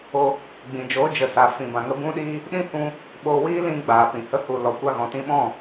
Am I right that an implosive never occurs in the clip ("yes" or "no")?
no